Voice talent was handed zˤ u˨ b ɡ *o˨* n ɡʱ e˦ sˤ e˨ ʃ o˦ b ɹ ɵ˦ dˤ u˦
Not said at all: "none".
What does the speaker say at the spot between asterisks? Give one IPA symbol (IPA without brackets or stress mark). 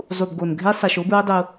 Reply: o˨